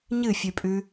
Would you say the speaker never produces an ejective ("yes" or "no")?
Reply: no